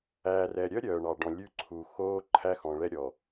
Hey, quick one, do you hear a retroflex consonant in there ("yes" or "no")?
yes